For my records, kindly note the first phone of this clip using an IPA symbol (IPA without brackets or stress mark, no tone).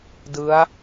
d